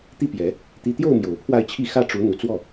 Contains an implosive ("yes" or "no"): no